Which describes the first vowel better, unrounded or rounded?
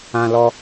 unrounded